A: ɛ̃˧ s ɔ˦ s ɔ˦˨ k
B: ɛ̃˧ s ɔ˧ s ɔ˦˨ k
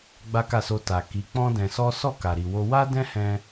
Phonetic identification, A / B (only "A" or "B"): A